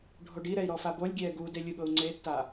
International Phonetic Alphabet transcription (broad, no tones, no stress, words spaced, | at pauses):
ɖʱoɖiɾɛi̯ ɾɔfabolʲɡʲɛː ɡude lʲɯɠɤu̯ŋ͡ǀetːa